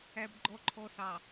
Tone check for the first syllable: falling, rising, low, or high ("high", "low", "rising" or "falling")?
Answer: low